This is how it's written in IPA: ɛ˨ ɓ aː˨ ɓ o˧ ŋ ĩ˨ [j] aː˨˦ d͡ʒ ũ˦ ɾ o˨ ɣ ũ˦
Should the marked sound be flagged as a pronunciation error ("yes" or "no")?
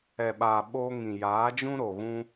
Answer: no